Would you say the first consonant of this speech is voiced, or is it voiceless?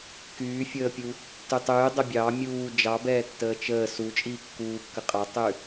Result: voiceless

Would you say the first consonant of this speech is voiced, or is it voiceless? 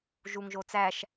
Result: voiced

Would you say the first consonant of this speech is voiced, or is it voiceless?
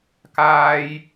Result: voiceless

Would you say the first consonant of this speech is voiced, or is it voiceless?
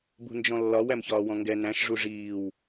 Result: voiced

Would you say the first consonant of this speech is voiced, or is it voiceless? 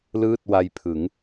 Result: voiced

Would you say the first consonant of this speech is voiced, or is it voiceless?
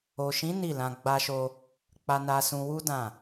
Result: voiceless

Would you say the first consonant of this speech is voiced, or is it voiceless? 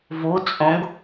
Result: voiced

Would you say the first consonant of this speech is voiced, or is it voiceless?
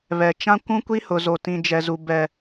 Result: voiced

